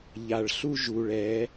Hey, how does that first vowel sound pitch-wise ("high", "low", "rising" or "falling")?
low